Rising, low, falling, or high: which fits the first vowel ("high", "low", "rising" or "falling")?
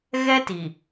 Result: high